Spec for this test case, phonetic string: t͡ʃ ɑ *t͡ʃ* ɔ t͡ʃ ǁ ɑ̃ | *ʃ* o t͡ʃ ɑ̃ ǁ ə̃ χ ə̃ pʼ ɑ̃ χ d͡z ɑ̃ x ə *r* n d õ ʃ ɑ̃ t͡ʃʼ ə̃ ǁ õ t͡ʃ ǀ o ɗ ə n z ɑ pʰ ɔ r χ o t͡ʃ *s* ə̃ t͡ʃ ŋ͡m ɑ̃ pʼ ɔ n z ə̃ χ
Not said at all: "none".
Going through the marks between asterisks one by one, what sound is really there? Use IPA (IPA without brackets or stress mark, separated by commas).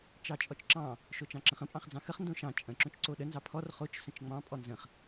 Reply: t͡ʃʼ, ʃ, χ, s